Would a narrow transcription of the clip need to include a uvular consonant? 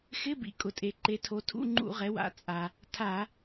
yes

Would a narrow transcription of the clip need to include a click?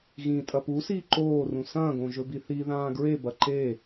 yes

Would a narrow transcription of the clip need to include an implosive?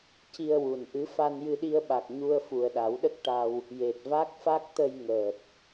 yes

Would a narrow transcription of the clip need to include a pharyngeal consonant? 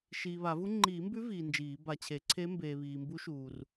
no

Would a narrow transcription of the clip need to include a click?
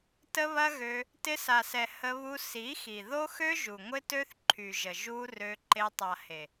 yes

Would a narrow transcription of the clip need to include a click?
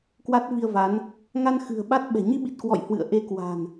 no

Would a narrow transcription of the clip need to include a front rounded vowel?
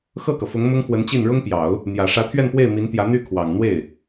yes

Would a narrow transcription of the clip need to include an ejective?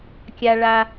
no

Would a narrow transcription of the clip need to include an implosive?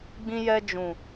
no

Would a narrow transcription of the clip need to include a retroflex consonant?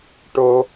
yes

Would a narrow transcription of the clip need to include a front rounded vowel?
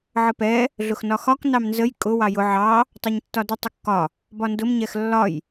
no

